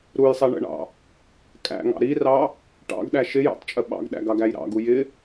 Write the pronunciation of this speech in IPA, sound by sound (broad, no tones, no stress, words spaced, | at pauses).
ɾujsˤɛ ɳə̰ɳɑ̰ | kʼæ̰ŋɑ̰ ɾirɑ | ʈɑ̰ɡɗæ ʃɪjɑ̰tˤt͡ʃʼə ɓɑ̰ɡɗæ̰ɡɑɡæj ɾɑ̰ɡu jɪ